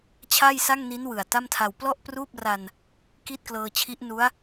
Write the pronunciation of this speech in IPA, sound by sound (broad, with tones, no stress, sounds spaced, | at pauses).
t͡ɕʰ a˥˩ j s a˥˩ ŋ n i˦˥ n w ɯ˨˩ a̯ t a˥˩ m tʰ a˧ w p l ɔ˥˩ ʔ p r uː˥˩ p̚ r a˧ n | k i˥˩ t̚ k l ɤː˧ t͡ɕʰ i˦˥ ʔ n u˦˥ a̯